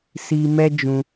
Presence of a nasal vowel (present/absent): present